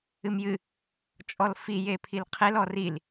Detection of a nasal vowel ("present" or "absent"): absent